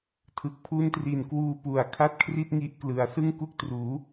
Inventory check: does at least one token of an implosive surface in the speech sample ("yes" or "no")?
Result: no